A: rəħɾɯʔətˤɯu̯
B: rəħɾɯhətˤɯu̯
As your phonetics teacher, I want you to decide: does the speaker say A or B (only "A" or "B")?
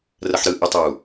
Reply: A